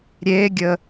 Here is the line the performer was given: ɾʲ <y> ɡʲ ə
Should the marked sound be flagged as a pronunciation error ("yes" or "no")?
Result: yes